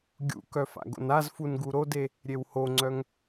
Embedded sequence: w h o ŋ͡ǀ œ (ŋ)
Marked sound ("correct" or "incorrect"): correct